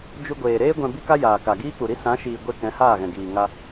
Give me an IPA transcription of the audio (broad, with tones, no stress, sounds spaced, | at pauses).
d͡ʒ u˧ ɡʷ eː˨ ɾ eː˦ ɡʷ ɛ̃˧ b i˦ k a˦ j aː˨ k a˨ ɡ iː˦ k͡p u˨ ɾ i˦ s ã˨˦ ʃ iː˨ ɡʷ e˦ k ɛ̃˨˦ h aː˦˨ ɣ ɛ̃˨ ɡ iː˨ ŋ a˧